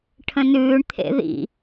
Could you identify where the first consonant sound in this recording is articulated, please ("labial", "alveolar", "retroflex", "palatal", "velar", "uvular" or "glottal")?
retroflex